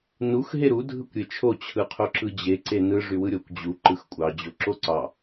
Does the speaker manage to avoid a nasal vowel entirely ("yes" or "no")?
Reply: yes